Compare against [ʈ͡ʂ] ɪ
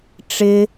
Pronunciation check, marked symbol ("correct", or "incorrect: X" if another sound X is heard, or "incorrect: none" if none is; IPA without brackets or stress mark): correct